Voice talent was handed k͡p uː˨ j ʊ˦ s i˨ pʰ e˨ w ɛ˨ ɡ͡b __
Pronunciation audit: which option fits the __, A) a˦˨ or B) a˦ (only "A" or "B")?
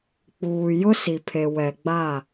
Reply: A